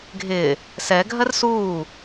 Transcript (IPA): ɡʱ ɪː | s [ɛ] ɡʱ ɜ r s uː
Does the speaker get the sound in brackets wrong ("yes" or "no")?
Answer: no